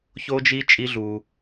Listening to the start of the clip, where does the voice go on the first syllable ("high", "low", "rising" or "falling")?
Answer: high